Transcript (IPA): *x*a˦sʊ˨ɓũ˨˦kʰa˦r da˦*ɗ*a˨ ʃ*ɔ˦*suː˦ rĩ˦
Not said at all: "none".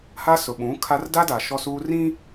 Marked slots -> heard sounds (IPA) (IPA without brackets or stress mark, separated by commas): h, d, ɔ˦